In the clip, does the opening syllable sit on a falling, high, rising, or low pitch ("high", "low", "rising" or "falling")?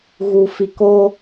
low